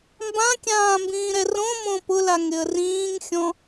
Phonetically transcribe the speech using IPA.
m b ã kʲ ãː m b ĩː ɾ ɛ r õ m õ p ʊ l a ŋ ɪ ə̯ r ĩː ŋ xʲ ɔ̃

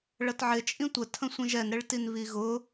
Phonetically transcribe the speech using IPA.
ɭ ə t ʕ ɪ t͡ʃʼ ĩ tʷ ə tʰ ə̃ sʷ ĩ ʒ ɛ n ɾ ɪ ɭ t i n β i ɣ ʊ

